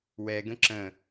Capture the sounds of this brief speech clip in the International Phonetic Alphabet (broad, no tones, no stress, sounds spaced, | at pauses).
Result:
w ɛ ɡ ə̃ ǁ ə̃